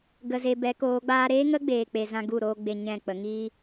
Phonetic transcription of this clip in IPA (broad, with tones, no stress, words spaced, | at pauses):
ɡə˨ze˨ bɛ˨˦koː˨˦ɡ͡baː˦ ɾeː˦ŋə˦ɡ͡beː˨k͡pe˨ zã˦ɡu˦˨ɾoː˦ɡ͡be˧ ɲɛ̃˦˨k͡pə˨˦ ŋiː˦